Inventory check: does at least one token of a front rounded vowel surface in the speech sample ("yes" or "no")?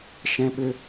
yes